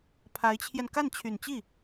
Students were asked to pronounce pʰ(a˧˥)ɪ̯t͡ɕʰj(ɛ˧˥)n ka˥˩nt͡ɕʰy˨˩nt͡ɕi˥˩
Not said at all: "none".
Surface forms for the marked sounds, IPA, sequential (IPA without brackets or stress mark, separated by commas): a˧˥, ɛ˧